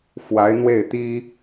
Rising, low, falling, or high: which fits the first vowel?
rising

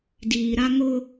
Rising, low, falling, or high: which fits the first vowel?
low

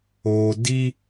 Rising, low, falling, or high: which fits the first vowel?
low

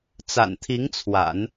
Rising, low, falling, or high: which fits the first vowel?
low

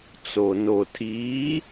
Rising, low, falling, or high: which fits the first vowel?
low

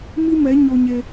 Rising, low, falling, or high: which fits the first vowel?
high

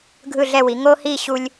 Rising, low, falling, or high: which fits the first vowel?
falling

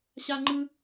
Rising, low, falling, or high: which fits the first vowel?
high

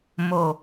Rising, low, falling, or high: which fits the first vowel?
low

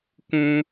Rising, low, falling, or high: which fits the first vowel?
high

